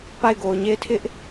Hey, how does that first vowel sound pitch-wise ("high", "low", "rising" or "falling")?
falling